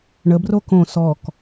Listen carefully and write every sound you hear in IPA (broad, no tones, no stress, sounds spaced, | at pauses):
ɳ ə b r o k õ s ɔ k